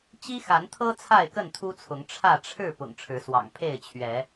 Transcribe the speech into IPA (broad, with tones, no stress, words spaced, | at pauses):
t͡ɕi˦xa˨˦nt̪ʰɤ˦ t͡sʰa˥˨ɪ̯kə˥˨nt̪ʰu˦t͡sʰʊ˨˦ŋ ʈ͡ʂʰä˥˨ ʈ͡ʂʰɻ̩˥˨ pʊ̰˨˩ŋʈ͡ʂʰɻ̩˨˦swɑ̰˨˩ŋ pʰe˥˨ɪ̯t͡ɕʰɥɛ˨˦